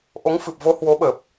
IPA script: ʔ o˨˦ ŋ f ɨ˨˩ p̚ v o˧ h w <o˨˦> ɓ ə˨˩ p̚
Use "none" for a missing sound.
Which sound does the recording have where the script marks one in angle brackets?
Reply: o˨˦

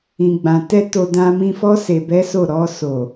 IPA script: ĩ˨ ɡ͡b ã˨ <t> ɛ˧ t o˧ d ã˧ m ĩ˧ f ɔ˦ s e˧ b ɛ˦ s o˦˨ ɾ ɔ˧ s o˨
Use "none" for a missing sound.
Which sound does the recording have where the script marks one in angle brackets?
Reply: t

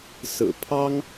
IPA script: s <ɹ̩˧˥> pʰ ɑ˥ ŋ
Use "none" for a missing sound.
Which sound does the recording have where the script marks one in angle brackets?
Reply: ɹ̩˨˩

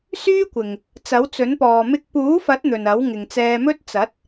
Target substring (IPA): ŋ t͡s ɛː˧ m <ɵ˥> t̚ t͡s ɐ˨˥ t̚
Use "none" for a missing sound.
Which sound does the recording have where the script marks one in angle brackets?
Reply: ɵ˥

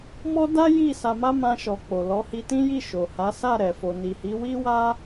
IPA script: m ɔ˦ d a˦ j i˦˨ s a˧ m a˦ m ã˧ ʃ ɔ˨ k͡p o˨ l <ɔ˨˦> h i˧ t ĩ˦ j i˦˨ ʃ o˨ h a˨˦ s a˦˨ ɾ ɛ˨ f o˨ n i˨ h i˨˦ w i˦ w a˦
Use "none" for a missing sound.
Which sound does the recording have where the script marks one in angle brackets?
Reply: ɔ˨˦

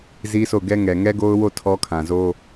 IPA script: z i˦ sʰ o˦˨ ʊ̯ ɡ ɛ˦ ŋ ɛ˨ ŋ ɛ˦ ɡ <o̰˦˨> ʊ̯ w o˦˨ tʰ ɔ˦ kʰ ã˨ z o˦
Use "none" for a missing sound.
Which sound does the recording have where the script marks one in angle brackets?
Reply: o˦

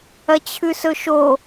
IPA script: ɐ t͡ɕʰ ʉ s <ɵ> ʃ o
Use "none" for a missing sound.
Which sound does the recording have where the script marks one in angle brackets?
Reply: ɵ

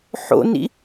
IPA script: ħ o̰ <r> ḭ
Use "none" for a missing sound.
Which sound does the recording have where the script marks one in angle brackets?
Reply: n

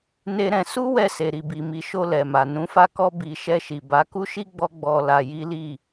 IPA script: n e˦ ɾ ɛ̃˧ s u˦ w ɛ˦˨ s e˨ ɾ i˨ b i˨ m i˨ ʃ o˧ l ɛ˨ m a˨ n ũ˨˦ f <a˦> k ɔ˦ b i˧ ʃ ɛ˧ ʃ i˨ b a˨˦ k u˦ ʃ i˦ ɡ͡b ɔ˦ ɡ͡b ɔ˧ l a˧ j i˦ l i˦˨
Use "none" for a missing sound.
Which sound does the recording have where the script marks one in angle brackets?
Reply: a˦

